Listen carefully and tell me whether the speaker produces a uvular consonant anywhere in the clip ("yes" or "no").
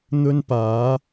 no